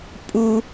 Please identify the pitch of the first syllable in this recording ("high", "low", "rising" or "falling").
high